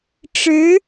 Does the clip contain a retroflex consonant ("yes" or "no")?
yes